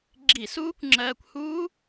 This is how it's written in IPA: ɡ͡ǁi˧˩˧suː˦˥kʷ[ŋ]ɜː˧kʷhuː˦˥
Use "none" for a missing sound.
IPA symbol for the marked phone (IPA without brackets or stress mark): ŋ͡ǁ